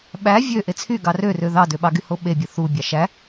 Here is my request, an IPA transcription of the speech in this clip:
ɓæ vʲø ʔet͡sʰyɡɑ rørø ðɑdøɓɑɡy hoɓebʲɯ θu bʲɑʃæ

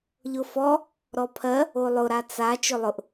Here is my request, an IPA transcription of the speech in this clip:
ʎʊfɔ | ɾɔpʰɜ | olˠʊ ɾat͡sa t͡ʃɵlˠʊʔ

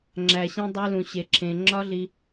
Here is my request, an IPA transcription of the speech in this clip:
ŋ͡ǁæ˨ɕĩ˧dˤu˧ lũ˨ɕe˨ǁʰẽ˨ ŋ͡ǁɒ˦ɮi˧

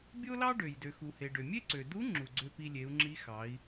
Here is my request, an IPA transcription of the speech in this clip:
bʲo˥lɑ˥ɖø˩j dø˩xu˩he˩ ɖø˩mʲe˥ǀø˩ du˧˥ ŋ͡ǁu˩ɡ͡ǀø˧ pi˧lʲe˩˧u̯ŋ͡ǁi˧˥ xɑ˩˧i̯

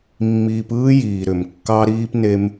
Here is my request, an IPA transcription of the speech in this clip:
mːiː˧pɯː˦ jiː˨ɾʏ˨m kːɑ˧ɾiː˧pne˧m

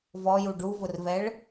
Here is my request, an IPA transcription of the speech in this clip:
vɔju ɖuvʊrvɛɭ

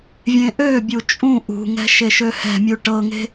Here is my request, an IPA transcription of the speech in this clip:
vʲẽʔøbʲu t͡ʃʼũ ʔṳŋɛ̤ ʃeʃøhɛ̤mʲu ʈɤŋe̤

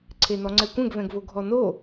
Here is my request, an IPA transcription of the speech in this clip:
ǀʰenɔŋ͡ǀɛkʷɛ̃ɡ vɛ̃ɡvoɡʱɔno

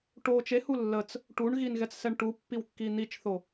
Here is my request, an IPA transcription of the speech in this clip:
ʈo t͡ʃehu lːət͡s | ʈuɳɣinɣɛt͡ssɛɳ ʈupːiwkːi n̪it͡ʃθo

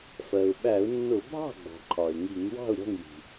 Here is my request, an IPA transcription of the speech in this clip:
fɜ˩ʊ̯ ɓæ˧˩˧ʊ̯nːʊ˧˩˧ bʱɑ̤˥˩ɡ͡bɔ̤˩ ǃʰɒ˩ɪ̯ŋi˧˩˧ŋ wɑ̤˥˩ʊ̯ɾʲɔ̤˥˩ŋji̤˩

